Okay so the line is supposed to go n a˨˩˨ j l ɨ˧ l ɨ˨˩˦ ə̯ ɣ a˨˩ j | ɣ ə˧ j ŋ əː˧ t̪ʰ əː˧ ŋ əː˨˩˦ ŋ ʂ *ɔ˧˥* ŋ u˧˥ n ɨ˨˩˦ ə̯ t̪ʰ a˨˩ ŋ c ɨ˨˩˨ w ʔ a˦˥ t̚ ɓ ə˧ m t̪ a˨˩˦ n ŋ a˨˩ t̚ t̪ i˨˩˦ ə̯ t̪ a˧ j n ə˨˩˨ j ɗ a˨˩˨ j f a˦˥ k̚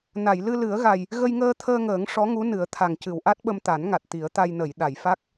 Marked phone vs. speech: correct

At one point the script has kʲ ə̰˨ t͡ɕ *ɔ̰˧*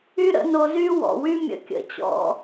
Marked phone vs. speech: correct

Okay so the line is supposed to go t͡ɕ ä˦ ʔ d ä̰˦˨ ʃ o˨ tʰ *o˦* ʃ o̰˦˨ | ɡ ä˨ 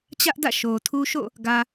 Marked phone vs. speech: incorrect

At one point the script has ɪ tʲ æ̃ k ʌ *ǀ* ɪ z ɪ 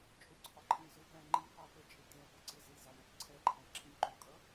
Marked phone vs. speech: correct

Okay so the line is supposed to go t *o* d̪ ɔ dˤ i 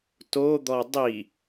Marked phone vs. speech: correct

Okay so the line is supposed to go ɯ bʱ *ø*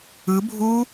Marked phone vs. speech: incorrect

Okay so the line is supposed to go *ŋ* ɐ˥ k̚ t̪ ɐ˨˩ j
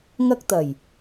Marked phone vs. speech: correct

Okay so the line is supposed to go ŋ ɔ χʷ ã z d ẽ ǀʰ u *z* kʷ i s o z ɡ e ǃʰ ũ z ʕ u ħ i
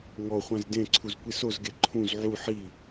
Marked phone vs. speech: correct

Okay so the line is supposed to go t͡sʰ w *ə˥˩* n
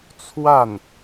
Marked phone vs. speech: incorrect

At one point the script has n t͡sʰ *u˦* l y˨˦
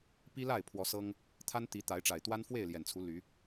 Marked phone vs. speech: incorrect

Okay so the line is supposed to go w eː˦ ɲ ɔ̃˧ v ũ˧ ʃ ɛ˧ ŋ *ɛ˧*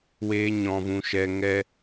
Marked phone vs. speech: correct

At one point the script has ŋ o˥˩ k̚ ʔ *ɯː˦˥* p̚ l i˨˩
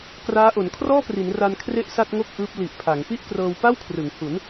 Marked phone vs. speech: correct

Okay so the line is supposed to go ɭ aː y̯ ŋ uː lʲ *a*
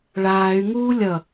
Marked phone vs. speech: incorrect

